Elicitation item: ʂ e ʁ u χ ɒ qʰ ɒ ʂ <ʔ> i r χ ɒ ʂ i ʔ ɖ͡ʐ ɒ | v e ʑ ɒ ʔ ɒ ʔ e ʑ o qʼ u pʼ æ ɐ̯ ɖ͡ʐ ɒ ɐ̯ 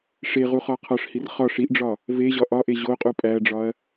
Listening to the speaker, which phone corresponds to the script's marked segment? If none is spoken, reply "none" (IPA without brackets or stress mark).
h